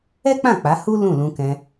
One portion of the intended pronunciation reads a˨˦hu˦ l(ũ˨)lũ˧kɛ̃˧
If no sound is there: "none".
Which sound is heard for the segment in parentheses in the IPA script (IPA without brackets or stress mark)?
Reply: ũ˦˨